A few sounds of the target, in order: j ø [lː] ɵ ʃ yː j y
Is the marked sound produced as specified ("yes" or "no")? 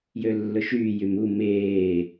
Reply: yes